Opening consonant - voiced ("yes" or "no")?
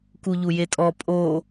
no